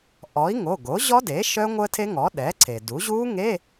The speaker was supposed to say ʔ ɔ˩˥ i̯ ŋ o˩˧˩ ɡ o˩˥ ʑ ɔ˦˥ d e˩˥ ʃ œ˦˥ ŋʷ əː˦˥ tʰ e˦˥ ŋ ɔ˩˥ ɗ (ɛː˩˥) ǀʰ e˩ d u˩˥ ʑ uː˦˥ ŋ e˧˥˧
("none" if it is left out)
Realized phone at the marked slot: ɛː˩˥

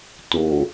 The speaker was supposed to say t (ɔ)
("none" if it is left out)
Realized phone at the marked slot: o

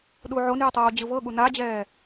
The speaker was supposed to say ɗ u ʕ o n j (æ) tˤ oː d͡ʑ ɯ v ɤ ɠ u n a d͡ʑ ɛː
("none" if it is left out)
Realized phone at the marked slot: ɛ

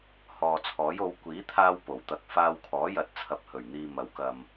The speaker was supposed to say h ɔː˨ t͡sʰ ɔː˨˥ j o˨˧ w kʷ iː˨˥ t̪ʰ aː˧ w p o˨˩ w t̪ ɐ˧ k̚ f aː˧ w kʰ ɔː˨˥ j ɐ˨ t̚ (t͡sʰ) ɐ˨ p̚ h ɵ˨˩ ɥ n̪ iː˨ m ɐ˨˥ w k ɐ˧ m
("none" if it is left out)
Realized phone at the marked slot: t͡sʰ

